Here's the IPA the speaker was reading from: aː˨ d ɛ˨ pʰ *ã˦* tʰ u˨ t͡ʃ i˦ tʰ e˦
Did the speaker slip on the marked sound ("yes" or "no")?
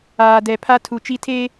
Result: yes